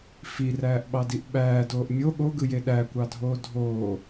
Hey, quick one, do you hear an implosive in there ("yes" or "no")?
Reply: yes